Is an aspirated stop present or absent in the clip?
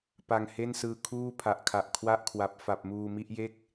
present